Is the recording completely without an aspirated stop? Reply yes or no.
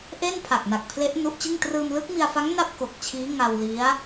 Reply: no